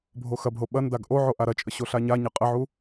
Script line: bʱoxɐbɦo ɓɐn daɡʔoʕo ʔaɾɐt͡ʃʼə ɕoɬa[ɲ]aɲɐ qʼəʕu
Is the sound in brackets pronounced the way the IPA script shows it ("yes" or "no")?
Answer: yes